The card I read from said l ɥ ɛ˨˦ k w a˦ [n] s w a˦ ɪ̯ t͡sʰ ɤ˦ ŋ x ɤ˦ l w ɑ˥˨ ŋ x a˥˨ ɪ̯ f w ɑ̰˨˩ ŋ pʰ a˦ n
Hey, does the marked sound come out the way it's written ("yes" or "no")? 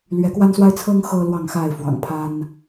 yes